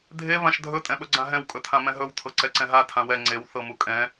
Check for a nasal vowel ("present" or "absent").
present